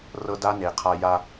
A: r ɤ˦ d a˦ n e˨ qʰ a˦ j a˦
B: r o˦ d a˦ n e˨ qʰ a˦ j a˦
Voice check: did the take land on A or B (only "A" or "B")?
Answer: A